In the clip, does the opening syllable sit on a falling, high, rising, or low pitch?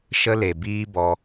high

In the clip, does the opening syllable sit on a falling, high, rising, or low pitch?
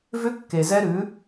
rising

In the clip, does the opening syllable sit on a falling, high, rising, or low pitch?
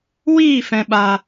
falling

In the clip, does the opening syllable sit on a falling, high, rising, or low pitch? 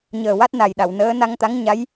low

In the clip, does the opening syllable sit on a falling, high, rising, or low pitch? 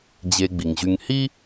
low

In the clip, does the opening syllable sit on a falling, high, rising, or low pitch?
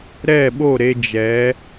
falling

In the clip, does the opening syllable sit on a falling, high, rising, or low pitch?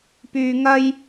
low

